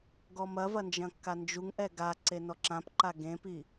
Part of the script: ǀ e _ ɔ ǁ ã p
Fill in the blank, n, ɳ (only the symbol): n